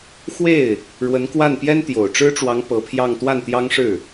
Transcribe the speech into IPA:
xwe˥˩ɪ̯ | ɻwə˧˥nkwa˥˩n pjɛ˥nt̪jo˨˩ʊ̯ʈ͡ʂɻ̩˥ʈ͡ʂwɑ˧˥ŋ pɤ˧˥pʰjɑ˥˧ŋ t̪wa˥˩nt̪jɑ˥ŋʂɻ̩˥˩

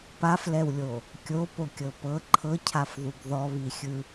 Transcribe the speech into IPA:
paflɛwlʲo | kʲopokʲɤ pɤ ǃʰɤcʰafðuɡ ðɔβixʲɯ

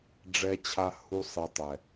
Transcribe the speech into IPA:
ɖ͡ʐɛ˨t͡ɕʰa˨ hu˨ sˤi˨tˤɛ˨

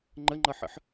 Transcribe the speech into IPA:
ŋ͡ǃəŋ͡ǃʌħə̰ħ

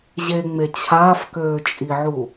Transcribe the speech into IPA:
ʑeŋ͡me t͡ɕʰaːfkøːt͡ʃʼiʕu

